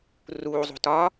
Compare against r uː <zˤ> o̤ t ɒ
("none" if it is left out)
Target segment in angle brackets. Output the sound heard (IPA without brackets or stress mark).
zˤ